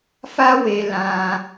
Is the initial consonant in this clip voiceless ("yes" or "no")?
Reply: yes